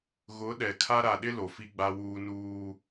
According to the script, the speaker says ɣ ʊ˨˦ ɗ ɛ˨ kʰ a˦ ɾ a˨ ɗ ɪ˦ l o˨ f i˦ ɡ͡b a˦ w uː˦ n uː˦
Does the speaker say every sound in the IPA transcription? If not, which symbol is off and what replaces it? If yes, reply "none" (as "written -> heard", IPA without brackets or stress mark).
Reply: none